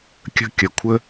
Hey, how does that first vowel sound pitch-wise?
high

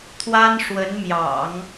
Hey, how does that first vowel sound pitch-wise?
high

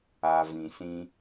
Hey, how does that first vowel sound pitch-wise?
low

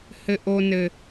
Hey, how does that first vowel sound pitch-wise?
high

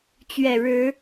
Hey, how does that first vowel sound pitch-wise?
low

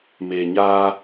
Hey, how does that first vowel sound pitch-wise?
low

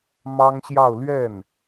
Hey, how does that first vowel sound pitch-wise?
high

